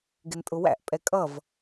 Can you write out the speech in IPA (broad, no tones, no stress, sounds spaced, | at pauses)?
ɡ ɪ n tʼ ʊ w æ̰ ʔ pʼ ɛ kʼ ʌ v